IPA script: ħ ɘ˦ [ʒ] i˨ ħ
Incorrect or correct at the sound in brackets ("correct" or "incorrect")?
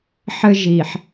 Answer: correct